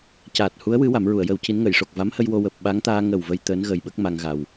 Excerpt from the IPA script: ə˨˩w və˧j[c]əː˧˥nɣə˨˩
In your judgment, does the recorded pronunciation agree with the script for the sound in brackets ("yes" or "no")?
no